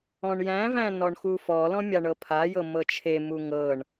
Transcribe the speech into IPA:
ɔ̃ɳjæ̃væ̃ nɔɳxufɔlɔ̃ mʲaɳɤpʰajɤ mɤt͡ʃʰemu ŋɤɳ

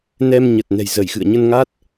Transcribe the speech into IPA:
nɛ˧mɲə˨˩t̚ nɛ̤˨˩jzə˧˩jxɨ̰˧˨ə̯ ɲə˧nŋa˦˥t̚

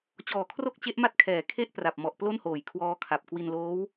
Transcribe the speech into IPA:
t͡ɕɔː˨˩kʰro˥˩k̚t͡ɕe˦˥ʔ ma˥˩t̚kʰɛː˩˦ kʰe˥˩ʔpra˨˩p̚mɔ˨˩ʔ plo˥˩nhoː˨˩jkʰwɔː˦˥kʰa˨˩p̚ kwi˧nloː˦˥w

